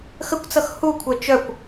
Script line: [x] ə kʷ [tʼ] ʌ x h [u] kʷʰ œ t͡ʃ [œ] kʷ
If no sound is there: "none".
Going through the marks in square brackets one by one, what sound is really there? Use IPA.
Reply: x, t͡s, u, œ

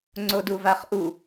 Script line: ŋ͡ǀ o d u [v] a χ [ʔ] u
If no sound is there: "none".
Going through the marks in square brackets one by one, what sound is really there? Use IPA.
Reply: v, ʔ

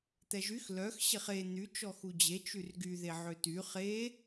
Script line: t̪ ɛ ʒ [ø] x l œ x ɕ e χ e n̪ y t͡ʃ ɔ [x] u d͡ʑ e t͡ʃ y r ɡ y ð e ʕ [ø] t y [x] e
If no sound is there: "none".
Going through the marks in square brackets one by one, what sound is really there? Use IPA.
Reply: y, x, ø, χ

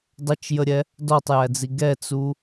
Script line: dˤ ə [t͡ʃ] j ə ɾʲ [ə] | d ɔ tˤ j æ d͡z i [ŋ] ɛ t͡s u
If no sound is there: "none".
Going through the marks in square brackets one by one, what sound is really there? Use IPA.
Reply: t͡ʃ, ɛ, ɡ

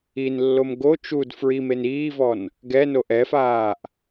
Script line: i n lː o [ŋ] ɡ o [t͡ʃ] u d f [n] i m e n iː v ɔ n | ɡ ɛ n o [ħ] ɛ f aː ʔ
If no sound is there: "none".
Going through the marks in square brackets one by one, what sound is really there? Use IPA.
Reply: m, t͡ʃ, ɹ, ʔ

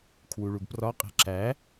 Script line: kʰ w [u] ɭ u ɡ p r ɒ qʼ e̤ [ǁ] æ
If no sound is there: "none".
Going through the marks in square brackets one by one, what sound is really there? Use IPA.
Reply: u, ǁ

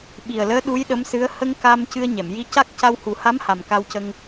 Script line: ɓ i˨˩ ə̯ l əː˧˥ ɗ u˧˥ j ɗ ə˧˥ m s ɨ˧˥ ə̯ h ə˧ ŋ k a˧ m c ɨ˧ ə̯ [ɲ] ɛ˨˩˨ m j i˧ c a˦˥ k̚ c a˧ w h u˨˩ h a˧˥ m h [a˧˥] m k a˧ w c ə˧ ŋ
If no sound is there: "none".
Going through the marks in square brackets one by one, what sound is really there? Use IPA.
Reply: ɲ, a˨˩

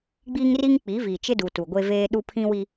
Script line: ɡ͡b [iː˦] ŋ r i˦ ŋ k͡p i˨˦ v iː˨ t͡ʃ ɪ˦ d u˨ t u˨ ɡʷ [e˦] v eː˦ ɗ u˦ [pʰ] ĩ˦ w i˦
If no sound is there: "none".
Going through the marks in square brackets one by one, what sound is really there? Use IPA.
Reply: iː˦, e˦, pʰ

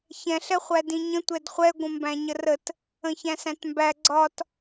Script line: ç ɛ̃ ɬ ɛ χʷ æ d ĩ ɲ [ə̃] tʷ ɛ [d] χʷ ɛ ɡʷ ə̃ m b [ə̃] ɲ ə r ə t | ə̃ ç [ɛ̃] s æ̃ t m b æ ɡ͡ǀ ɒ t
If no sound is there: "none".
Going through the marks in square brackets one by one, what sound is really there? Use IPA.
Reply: ə̃, d, æ̃, æ̃

